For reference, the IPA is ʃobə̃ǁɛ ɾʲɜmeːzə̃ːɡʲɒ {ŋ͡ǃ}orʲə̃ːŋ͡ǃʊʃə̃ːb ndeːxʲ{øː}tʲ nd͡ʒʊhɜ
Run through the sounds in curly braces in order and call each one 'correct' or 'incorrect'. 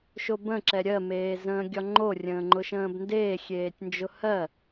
correct, incorrect

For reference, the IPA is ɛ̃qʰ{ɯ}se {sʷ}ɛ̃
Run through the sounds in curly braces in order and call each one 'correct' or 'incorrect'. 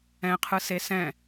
correct, incorrect

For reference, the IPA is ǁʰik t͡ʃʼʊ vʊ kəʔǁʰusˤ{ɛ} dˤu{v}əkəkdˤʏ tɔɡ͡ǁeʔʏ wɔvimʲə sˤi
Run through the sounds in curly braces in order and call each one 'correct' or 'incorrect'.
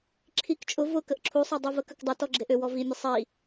correct, correct

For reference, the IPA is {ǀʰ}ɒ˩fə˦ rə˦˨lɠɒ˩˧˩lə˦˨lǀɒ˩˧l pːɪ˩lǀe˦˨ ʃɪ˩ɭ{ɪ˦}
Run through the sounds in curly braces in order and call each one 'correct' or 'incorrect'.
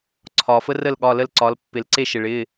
correct, incorrect

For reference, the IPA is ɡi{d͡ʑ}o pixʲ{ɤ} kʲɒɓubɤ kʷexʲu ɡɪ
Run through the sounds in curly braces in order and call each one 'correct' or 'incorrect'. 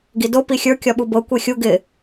incorrect, incorrect

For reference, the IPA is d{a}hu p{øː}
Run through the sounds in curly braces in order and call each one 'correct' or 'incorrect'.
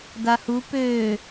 correct, correct

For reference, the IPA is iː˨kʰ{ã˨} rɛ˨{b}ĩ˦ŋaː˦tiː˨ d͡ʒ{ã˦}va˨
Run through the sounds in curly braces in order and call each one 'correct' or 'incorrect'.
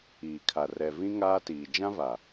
incorrect, incorrect, correct

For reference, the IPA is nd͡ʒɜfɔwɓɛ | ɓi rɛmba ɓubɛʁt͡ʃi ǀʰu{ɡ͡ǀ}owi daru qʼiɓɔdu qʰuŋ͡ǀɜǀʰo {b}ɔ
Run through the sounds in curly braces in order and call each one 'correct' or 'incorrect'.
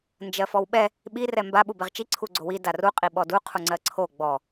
correct, incorrect

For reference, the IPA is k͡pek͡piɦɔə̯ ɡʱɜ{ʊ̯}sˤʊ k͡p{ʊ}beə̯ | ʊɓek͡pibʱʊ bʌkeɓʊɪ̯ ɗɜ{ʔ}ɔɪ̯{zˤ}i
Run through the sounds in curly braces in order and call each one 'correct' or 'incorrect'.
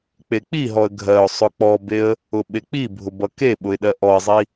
correct, incorrect, correct, correct

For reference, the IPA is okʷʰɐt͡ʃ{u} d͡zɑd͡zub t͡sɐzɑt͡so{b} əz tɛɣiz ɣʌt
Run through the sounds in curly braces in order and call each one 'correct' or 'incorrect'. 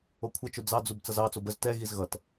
incorrect, correct

